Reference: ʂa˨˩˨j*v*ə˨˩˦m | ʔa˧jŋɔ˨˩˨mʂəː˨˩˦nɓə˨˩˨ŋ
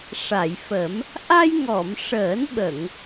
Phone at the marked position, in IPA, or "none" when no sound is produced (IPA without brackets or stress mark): f